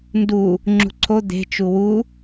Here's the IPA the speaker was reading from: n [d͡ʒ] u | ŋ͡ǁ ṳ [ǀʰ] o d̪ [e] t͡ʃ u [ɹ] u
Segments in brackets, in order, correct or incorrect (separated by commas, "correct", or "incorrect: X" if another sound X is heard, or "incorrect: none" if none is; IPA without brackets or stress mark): incorrect: d, correct, incorrect: e̤, incorrect: w